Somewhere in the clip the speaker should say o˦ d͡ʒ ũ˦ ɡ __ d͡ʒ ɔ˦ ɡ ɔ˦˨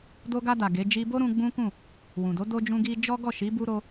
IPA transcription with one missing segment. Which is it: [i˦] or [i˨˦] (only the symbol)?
i˦